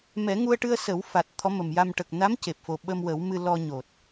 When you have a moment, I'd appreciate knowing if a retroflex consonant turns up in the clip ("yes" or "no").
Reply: yes